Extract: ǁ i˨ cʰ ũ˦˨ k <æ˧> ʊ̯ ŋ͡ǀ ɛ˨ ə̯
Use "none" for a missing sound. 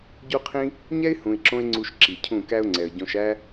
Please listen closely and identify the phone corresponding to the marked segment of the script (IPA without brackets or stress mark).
æ˦